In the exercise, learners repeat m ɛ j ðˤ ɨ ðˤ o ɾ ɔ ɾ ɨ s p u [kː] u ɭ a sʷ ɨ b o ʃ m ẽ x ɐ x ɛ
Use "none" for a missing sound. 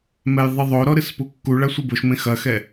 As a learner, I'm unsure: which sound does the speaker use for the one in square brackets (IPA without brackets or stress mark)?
kː